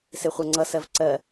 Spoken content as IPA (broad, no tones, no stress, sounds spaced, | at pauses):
s e χʷ ɜ ŋ͡ǀ ʌ s ɜ v ǀ ɜ